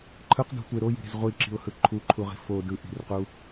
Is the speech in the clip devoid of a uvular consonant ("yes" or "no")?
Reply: no